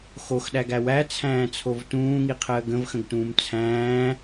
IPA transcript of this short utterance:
x o x ɗ æ ɡ æ w æ t͡sʰ æ̃ː t͡sʰ o v t ũː ŋ i qʰ əː ɡ ə̃ v x ə̃ ɡ t ũː m t͡sʰ æ̃ː

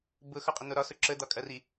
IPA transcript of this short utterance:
b ʊ x ɒ qʼ ə n̪ o ɾ ɒ s ʊ ǁ ə d̪ ɒ kʼ ɐ r i

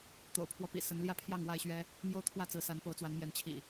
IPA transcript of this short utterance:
t̪ o̰˨˩ ʊ̯ pʰ w ɔ˦ p ḭ˨˩ s ə˨˦ n l j ä˥˨ pʰ j ɑ˥˨ ŋ w a˥˨ ɪ̯ ɕ ɥ ɛ˦ | m j o˦ ʊ̯ t̪ʰ w ä˥˨ t͡s ɹ̩˨˦ s a˨˦ n p o˨˦ ʊ̯ t͡s w a˨˦ n m j ɛ˨˦ n t͡ɕʰ ḭ˨˩

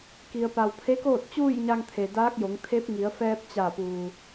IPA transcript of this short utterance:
k i˩ ə̯ p a˩ w pʰ e˧˥ k oː˥˨ t̚ t͡ɕ uː˥˨ j ɲ a˧ ŋ t̪ʰ e˩ d aː˧˥ k̚ j o˩˧ ŋ t̪ʰ e˧˥ p̚ ŋ i˩˧ ə̯ f ɛː˧ p̚ t͡ɕ a˧˩ p uː˩

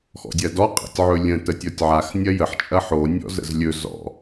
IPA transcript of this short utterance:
x ɔ̰ dʲ ɐ d ɔ qʼ ɛ̰ tʲ ʕ ɵ lʲ ə̃ t ə tʲ ɔ tʲ ʕ a x nʲ ɐ j ə ħ t͡ʃʼ ɐ ħ o nʲ ɔ̰ z ə̰ z lʲ ɵ z ɔ̰

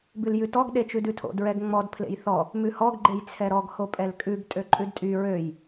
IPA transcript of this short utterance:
b ʉ l j ʉ t ɔ ɡ ɗ e t͡ʃ ʉ d ʉ tʰ o̰ d ɹ ɛ ɡ ŋ͡m ɔ d pʰ l ḛ j θ ɔ | m ʉ h ɔ ɡ ɡ͡ǃ e j t͡sʰ ɛ ɾ ɔ ɡ h o pʼ ɛ l kʼ ʉ ɡ tʼ ø ǃʼ ʉ d tʼ y ɹ ø j

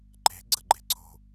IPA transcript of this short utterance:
ǃ e̤ ɡ͡ǀ ə ɡ͡ǃ e̤ ǀʰ o̤

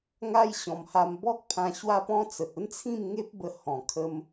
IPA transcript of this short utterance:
ŋ a˦ j ɕ ɔ̃˧ m h a˦ m b ɔ˦ k̚ pʰ ã˧ ɕ w a˦ p ɔ̃˦ t͡s ə˨ t̚ ə˦ n t͡sʰ ĩ˥˧ m ŋ e˦ p̚ b ə˧ h ɔ̃˨˩ kʰ ə˧ m

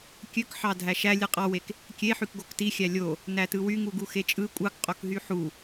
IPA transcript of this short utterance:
kʲ ø k ħ ɑ dʱ æ ʃ æ lʲ ɯ qʼ ɑ w e k | kʲ e ħ y k ɡ o k t i xʲ æ lʲ o | n æ t ɯ w y ŋ u ɡ u x e t͡ʃʼ ɯ kʷʼ ɑ k qʼ o k ɦ y ħ u

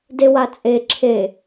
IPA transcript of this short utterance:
d e w a t͡sʼ e ǁʰ e

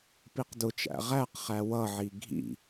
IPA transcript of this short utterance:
p i q d ʊ t͡ʃ æ̰ ʁ æ q χ æ w ʌ ʕ i ɡʱ ḭ

